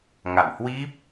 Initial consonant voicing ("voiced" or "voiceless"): voiced